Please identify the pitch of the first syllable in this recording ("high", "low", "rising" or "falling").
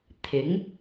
rising